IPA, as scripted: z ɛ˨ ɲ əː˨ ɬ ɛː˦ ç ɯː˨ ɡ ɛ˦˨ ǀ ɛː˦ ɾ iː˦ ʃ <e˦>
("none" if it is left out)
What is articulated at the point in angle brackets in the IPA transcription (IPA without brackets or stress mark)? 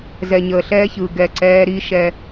ɛ˦